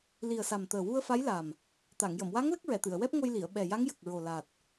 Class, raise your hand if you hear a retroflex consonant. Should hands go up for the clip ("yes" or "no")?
no